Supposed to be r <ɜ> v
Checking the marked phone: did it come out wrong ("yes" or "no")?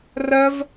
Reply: no